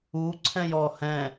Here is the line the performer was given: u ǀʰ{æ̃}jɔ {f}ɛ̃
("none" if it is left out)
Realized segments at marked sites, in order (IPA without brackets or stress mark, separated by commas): ɛ̃, h